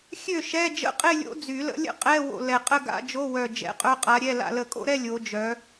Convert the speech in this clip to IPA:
xʲø˥˩ʃɛ˧˥˧ d͡ʒə̰˧˥˧qʼe˥˧ lʲo̰˧˥d͡zy˨˩˦lə̰˧˥lʲə̰˥˧ qʼɛ˧˥˧wo̰˧˩ lɛ˧˩qʼə˥˧ ɡa̰˧˥˧d͡ʒo˧˥˧wœ˧˩ d͡ʒɛ̰˧˥˧qʼœ˧˥˧qʼa˧˥ɾʲɛ˧˥˧ la̰˧˩lə˨˩˦kʼo̰˥˧ɾɛ˥˧ lʲo˧˥d͡ʒœ˧˥

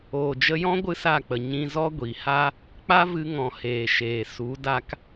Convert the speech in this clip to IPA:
oː˨d͡ʒə˧jɔ̃˦ ɡʷɨ˦sa˦˨k͡pə˨ ɲĩ˧zɔ˦ ɡʷi˨ha˦ | k͡pa˦vɨ˧ŋɔ̃˨ heː˨ʃeː˨ su˨˦ da˦k

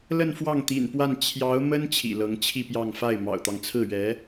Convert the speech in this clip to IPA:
lə˥˧nfwɑ˥˩ŋt̪ḭ˨˩npwa˥˩n t͡ɕʰjɑ˧˥ʊ̯mə˥n t͡ɕʰḭ˨˩lɤ˧˥ŋt͡ɕʰi˥˧pjɑ˥˧ŋ fa˥˩ɪ̯ mɑ̰˨˩ʊ̯t̪ɑ˦ŋ t͡sʰɹ̩˥˩ɥɛ˧˥

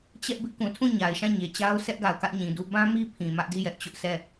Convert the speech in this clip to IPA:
t͡ɕɛ˦ʔ bɪ˦ʔkũ˨ tʰũ˦˨ɲa˨ɪ̯ʃã˦˨ ɲe˨t͡ɕa˦ʊ̯ sɛ˦ʔɡa˨ʊ̯ kä˦ʔɲĩ˨du˦ bã˦mi˦ pʰĩ˨mä˦ʔdi˦˨jɛ˦ʔ t͡ɕʊ˦ʔsɛ˦˨

